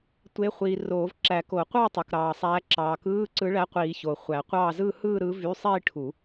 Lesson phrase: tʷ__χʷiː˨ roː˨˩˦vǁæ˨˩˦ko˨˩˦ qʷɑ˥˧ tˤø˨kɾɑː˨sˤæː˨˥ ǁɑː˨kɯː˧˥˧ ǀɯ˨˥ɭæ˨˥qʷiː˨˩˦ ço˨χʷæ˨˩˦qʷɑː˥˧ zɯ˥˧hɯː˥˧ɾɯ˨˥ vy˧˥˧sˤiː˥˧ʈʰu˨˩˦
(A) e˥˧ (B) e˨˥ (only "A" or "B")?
B